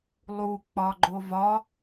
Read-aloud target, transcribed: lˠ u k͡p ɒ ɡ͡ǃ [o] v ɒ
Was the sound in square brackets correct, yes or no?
yes